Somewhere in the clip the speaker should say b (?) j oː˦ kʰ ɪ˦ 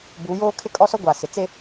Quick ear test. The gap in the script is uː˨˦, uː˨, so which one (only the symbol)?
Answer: uː˨˦